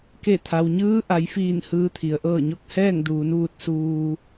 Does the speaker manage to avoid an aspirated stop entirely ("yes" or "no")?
no